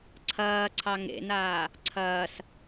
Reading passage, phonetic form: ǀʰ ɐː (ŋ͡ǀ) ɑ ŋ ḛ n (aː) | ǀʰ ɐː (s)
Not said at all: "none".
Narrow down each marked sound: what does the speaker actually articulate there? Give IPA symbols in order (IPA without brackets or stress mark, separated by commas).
ǀʰ, aː, s